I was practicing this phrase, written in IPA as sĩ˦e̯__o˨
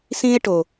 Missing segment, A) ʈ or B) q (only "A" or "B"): A